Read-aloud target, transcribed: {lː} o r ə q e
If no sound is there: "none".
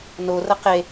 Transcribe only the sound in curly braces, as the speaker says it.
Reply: n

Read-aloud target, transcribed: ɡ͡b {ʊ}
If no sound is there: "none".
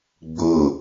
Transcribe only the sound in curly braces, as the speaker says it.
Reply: ʊ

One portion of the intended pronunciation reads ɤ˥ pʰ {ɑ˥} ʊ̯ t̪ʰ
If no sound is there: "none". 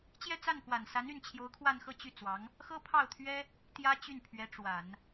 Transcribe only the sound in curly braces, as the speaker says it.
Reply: ɑ˥˩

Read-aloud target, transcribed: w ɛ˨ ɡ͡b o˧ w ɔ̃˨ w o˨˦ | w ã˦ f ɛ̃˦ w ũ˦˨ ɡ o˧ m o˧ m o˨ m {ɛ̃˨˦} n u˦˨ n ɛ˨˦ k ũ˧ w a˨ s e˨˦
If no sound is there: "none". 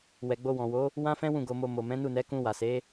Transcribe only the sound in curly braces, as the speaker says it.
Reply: ɛ̃˨˦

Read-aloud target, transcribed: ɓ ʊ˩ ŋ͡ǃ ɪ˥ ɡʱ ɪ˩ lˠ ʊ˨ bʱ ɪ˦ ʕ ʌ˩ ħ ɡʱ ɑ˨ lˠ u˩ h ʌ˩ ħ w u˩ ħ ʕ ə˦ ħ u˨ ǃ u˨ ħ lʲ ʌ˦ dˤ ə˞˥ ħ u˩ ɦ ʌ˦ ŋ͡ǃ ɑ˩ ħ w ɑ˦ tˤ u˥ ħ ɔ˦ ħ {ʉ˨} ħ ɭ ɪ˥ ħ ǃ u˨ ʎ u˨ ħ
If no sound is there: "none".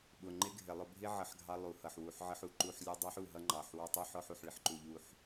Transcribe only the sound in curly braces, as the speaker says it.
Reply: u˨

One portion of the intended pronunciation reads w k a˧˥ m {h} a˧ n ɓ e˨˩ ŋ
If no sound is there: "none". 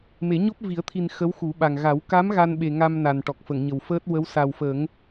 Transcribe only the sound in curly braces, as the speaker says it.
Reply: ɣ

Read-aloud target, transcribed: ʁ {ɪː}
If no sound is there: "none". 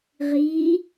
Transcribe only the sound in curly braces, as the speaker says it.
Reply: iː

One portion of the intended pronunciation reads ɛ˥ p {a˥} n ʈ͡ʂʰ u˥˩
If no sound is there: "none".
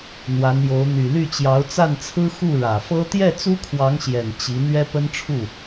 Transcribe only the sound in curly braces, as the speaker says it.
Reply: ə˥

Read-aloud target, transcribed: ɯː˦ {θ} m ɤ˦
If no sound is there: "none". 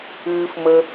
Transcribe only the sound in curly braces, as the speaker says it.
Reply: f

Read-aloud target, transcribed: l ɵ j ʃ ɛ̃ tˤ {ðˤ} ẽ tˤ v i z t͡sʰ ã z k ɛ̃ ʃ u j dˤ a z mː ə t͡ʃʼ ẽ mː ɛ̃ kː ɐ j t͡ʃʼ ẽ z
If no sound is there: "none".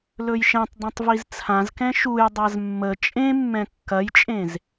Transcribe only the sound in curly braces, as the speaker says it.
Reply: dˤ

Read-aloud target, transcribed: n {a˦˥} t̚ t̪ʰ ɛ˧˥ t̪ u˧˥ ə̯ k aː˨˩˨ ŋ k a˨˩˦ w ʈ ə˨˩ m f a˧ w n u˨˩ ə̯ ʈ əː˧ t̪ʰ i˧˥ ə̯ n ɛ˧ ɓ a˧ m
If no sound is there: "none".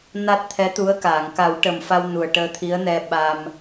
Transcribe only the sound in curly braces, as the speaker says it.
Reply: a˦˥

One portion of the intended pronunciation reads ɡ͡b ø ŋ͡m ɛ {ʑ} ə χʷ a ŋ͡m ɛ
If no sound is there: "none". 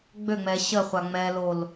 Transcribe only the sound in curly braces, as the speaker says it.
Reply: ɕ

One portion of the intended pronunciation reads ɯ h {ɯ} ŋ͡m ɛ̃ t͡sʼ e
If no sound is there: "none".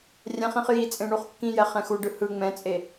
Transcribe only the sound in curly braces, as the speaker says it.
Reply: ɯ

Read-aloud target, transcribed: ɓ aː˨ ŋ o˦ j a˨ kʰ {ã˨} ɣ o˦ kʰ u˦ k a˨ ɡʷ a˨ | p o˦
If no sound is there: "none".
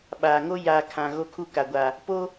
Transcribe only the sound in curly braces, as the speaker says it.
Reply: ã˨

